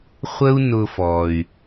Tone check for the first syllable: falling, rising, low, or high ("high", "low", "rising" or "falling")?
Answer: high